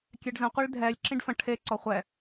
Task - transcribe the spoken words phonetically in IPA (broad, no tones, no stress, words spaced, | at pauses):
kʲɛɖzə̃ qʷiɭdʱɛlʲ ǁĩɖfə̃ ʈʰe ǀɔχʷɛ